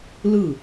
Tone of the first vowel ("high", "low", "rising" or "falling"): falling